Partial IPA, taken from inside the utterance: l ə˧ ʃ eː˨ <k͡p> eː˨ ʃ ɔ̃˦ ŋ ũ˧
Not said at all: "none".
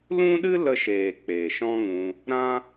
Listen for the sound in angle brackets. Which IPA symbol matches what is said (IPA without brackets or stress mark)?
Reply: k͡p